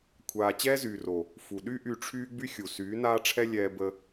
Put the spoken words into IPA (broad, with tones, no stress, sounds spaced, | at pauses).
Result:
kʷʰ aː˧ t͡ɕ ɛː˦ z yː˨ r o˨ | f u˨ ɗ y˦ ʔ y˧ ʈ͡ʂʰ yː˦ ɡ͡b y˦ xʲ u˨ s yː˨˦ n aː˦ ʈ͡ʂʰ ɛ˦ lʲ ɛː˧ b ə˧